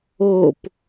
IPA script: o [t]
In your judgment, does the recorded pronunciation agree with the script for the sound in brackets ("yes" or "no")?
no